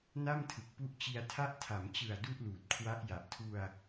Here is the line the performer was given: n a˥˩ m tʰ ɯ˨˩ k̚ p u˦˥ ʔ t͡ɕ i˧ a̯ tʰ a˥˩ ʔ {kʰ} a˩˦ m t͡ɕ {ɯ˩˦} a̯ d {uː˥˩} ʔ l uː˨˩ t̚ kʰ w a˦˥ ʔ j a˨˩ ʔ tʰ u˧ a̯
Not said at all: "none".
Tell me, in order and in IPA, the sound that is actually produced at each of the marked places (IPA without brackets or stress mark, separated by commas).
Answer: tʰ, ɯ˨˩, u˥˩